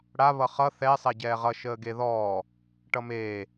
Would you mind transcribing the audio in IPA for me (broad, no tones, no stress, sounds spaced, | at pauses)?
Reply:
ɽ a β ʌ χ ʌ θ ɛ sˤ ɛ ɟ ɛː ʁ ʌ ʃ əː ɡ e ð ɔː | ʈ ʌ m eː